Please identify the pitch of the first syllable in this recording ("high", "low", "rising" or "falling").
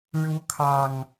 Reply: rising